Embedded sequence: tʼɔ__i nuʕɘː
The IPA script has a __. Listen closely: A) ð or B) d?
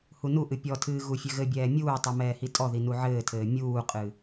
A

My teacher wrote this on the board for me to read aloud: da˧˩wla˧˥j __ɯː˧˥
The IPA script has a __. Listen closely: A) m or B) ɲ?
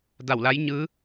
B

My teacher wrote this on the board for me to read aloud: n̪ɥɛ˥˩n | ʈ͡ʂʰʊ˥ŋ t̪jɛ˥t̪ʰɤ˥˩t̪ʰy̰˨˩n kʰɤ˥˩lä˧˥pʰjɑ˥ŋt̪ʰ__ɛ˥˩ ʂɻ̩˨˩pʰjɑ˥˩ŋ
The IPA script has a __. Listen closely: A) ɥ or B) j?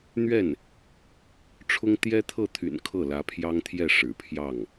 B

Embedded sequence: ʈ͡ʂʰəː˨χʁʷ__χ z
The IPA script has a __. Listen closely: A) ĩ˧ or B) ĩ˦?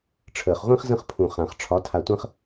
B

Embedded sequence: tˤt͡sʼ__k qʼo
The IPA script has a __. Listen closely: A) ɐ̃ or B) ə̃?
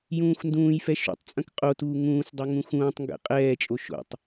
A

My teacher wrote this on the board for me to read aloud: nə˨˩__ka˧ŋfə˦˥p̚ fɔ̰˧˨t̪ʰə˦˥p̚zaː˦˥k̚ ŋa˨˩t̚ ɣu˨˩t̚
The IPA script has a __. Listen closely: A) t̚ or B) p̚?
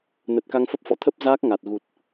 A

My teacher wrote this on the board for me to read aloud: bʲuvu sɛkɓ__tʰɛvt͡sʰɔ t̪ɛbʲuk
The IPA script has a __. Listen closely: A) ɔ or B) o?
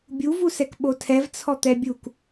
B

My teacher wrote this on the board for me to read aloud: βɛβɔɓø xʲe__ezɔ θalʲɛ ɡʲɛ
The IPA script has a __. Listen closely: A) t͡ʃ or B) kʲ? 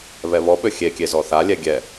B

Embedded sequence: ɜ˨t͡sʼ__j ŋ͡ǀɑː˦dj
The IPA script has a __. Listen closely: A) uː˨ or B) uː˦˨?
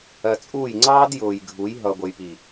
B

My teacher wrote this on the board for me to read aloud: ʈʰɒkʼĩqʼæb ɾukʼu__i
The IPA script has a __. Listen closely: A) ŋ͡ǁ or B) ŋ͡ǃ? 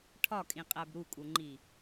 B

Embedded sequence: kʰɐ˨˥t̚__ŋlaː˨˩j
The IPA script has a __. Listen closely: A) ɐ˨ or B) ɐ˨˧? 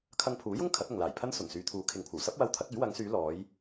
A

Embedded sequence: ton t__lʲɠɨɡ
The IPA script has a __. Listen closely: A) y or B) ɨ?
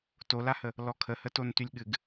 A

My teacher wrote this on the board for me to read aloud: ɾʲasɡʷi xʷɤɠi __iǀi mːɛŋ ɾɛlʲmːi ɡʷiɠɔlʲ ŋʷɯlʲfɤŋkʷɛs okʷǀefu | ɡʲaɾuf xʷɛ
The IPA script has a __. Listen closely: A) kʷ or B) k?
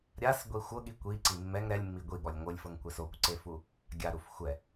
A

